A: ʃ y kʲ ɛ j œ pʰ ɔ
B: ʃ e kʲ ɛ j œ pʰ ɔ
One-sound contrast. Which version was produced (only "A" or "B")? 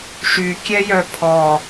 A